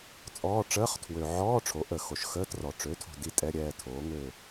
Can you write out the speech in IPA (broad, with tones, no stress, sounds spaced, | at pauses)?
t͡sʼ ɔː˧˥˧ ʈ͡ʂ əː˧˥˧ χ tʰ w ø˨ ʕ ɔː˧˥˧ ʈ͡ʂʰ o˩˥ ʔ ə˨ x o˨ ʃ x əː˧˥˧ t r ɔ˨ ʈ͡ʂ ø˩˥ tʰ o̤˨ d i˦˨ tʼ ɛ˧˥˧ ɾʲ ɛː˦˨ tʰ oː˩˥ ŋ ø˦˨